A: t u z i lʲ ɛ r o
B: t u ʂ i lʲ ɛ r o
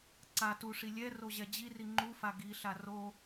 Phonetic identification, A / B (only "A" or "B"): B